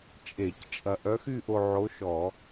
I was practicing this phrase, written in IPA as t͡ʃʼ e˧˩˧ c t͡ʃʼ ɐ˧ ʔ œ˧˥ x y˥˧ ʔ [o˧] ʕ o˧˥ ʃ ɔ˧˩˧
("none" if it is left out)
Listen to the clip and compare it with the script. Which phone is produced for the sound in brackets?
o˧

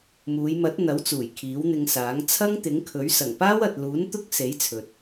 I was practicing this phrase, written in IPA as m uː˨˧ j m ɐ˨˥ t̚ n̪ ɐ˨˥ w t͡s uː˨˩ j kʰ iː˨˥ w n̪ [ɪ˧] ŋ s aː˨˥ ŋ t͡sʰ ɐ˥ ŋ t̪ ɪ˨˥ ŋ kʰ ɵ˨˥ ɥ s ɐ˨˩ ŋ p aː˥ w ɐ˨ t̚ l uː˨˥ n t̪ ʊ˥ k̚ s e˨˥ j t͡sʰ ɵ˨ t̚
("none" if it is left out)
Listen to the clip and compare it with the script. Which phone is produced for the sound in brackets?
ɪ˧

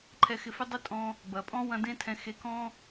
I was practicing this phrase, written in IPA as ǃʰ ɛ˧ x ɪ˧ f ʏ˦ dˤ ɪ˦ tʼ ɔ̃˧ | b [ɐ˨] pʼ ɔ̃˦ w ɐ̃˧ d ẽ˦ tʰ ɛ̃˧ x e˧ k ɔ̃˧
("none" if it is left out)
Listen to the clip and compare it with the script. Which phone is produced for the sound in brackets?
ɐ˨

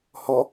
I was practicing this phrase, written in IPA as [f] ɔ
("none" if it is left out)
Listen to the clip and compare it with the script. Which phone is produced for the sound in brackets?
h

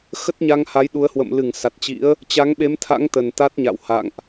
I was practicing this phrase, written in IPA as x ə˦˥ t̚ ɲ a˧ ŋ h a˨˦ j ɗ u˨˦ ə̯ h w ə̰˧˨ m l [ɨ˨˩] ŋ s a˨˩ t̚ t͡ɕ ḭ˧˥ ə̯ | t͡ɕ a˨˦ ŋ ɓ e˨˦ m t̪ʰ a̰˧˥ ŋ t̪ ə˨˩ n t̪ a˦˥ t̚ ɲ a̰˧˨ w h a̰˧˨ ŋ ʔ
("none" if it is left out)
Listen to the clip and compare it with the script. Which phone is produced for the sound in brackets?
ɨ˧˩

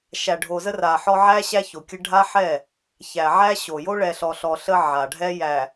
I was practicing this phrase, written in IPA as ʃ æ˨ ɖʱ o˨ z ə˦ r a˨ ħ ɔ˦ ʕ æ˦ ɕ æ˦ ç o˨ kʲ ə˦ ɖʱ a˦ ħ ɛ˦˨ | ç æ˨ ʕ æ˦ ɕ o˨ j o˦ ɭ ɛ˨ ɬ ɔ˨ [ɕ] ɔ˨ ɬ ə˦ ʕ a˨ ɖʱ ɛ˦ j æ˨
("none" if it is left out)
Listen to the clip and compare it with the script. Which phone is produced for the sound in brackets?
ɬ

